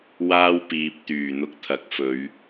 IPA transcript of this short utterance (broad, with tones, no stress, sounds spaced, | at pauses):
w aː˥ w p iː˨ p̚ t̪ yː˨˩ n̪ ʊ˧ k̚ t̪ʰ ɐ˨˥ k̚ f ɵ˨˧ ɥ